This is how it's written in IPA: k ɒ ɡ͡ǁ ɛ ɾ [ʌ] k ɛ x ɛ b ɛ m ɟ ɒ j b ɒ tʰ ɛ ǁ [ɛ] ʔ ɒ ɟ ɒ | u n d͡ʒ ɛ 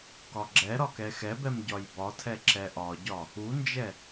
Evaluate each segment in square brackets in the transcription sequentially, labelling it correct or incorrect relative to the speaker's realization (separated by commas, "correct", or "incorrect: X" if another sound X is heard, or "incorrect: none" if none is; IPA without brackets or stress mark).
incorrect: ɒ, correct